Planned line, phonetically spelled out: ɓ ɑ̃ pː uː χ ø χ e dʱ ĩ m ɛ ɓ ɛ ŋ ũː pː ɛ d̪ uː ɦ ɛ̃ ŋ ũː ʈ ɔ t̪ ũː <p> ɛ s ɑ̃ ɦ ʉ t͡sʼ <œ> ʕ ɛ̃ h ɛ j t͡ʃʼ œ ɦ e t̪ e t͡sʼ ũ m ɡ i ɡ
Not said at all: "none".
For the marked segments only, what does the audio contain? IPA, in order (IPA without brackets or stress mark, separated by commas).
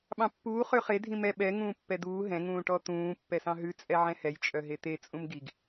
pː, ɛ